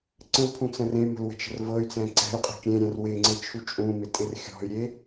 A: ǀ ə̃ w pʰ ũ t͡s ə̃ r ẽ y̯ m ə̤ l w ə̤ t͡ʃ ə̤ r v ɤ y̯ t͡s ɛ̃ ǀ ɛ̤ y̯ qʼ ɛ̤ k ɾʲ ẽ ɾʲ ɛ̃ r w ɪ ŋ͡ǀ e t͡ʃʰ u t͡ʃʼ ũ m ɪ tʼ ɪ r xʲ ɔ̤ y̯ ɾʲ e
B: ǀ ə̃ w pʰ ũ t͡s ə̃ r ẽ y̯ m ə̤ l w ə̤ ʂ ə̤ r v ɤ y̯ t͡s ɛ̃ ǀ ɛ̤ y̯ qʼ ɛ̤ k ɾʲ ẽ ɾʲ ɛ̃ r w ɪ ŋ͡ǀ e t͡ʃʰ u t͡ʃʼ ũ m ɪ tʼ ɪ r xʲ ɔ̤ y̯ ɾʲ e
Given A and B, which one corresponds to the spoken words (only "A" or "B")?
A